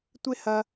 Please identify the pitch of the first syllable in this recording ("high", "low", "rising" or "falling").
high